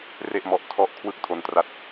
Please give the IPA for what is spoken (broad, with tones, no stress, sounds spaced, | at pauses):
r e˥˩ ʔ m ɔ˦˥ ʔ tʰ ɔ˦˥ ʔ kʰ w ɯ˥˩ k̚ tʰ o˧ n t r a˦˥ t̚